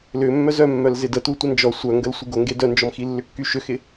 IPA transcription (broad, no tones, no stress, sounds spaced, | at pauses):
l ʏ mː œ z œ mː œ l z ɪ d ə t u tʷ ə n d͡ʒ ɔ sʷ œ ŋ ɡ ə l sʷ ɪ ɡ o ŋ ɡ e d œ n d͡ʒ ɔ m x i lː ʏ kː y ʃ ʏ x ɪ